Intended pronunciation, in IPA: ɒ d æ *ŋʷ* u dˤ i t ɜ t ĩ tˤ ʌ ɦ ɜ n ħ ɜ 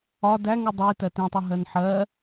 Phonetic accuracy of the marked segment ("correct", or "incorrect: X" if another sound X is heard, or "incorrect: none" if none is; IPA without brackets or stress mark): incorrect: ŋ